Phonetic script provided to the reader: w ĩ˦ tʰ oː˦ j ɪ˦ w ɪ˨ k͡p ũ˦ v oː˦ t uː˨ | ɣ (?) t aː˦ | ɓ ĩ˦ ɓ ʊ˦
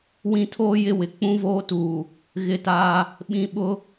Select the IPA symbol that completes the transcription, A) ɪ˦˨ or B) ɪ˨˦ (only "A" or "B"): A